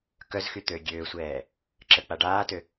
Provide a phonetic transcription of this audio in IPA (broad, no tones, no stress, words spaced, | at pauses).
kœzxyt̪øː ɡʲøːsʷɛː | ǁək͡pa ɖaːtø